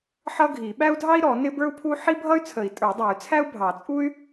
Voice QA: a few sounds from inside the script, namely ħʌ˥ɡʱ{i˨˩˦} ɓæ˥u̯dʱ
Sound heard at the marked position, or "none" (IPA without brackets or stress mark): i˨˩˦